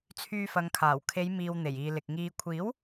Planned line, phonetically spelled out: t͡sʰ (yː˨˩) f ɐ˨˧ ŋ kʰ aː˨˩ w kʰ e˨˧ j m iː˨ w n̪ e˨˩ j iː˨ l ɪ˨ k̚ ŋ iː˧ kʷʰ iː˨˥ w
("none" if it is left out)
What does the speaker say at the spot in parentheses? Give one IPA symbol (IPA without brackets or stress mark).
yː˧